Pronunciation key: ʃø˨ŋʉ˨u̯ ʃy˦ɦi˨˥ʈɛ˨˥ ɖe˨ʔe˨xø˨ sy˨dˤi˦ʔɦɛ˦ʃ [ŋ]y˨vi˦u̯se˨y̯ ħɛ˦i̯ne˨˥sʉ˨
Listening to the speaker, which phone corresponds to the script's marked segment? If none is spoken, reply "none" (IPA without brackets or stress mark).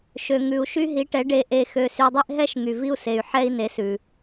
ŋ